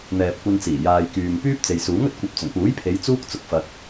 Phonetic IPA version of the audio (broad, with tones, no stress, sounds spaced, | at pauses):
n̪ ɛː˨ p̚ kʷ ɐ˧ n t͡s iː˨˩ j aː˨ j k yː˨ m p yː˥ p̚ t͡s e˨ j s uː˨˥ ŋ ɵ˨ t̚ kʷ ɐ˨˥ p̚ t͡s ɵ˨˩ n p uː˨˥ j pʰ e˨˧ j t͡s uː˥ k̚ t͡s ʊ˨ k̚ f ɐ˨ t̚